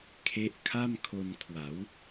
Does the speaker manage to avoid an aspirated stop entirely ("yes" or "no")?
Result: no